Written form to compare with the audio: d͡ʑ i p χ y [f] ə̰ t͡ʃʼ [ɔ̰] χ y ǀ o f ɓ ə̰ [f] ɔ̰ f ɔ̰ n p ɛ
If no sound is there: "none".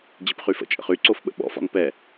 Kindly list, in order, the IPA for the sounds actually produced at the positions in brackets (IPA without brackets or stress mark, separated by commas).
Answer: f, ə̰, ɓ